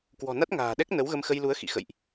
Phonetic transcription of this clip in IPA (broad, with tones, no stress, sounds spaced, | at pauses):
k w ɔ̤˨˩ n a˦˥ t̚ ŋ a̤ː˨˩ ɗ ɛ˦˥ k̚ n ə˨˦ w ɣ ə˧ m x ə˧ j l u˨˦ ə̯ x ḭ˧˨ x ə̰˧˨ j ʔ